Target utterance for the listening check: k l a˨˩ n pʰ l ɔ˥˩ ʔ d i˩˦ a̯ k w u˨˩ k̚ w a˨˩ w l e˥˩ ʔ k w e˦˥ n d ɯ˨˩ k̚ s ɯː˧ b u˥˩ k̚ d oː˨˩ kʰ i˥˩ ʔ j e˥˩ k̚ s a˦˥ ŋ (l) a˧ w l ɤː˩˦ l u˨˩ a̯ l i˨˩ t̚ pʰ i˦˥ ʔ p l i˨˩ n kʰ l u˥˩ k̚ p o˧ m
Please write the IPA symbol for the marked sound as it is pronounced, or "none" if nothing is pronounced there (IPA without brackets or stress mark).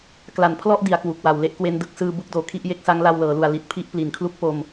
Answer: l